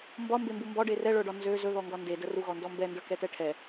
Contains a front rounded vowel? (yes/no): yes